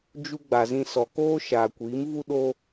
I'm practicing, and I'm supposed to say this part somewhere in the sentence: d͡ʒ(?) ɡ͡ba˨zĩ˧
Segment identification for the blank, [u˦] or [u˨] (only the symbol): u˦